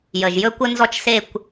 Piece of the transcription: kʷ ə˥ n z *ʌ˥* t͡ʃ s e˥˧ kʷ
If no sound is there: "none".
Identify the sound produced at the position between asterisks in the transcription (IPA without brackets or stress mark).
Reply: ɔ˥